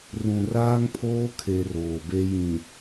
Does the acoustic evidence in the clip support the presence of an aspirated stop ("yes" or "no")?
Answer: yes